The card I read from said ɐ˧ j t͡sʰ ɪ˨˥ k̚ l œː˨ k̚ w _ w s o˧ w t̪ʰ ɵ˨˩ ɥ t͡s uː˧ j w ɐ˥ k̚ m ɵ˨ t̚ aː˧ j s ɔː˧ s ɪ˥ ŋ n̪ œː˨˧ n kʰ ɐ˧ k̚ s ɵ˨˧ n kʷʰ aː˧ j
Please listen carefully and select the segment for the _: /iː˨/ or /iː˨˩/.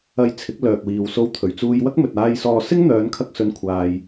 iː˨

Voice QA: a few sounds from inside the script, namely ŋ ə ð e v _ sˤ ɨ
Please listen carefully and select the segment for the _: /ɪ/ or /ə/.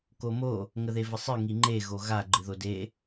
ə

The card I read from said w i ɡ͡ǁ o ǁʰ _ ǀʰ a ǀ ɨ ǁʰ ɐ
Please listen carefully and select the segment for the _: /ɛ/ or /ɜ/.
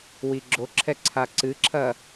ɛ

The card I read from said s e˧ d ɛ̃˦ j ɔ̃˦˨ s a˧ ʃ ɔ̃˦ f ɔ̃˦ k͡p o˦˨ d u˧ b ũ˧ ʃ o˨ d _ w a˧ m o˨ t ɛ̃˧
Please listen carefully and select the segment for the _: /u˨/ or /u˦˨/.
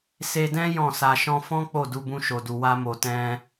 u˨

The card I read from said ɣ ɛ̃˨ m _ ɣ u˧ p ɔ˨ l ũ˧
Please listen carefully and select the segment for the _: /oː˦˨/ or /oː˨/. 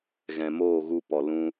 oː˦˨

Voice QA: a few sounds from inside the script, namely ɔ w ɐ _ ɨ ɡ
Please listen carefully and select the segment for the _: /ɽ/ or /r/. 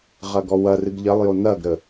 r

